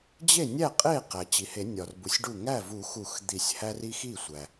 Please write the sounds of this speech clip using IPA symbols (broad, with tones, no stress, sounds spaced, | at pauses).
d͡ʑ e˥˩ nʲ æ˥˩ qʼ e˥˩ q æ˩ t͡ɕ i˩ h e˨˩˦ nʲ ɒ˩ r b u˩ sʲ ɖ u˥˩ ŋ æ˥˩ v u˨˩˦ x u˨˩˦ x d̪ i˨˩˦ sʲ h æ˦ r i˦ x i˥˩ sʷ æ˩